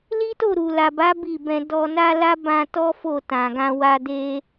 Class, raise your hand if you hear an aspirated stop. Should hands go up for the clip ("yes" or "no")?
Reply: no